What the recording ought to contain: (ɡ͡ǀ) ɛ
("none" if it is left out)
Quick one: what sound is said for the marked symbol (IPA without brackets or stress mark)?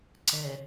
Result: ǀ